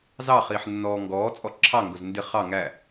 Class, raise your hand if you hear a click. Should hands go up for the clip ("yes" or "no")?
yes